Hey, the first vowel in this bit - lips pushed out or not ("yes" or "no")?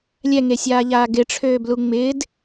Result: no